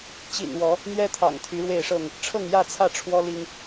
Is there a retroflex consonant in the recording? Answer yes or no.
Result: yes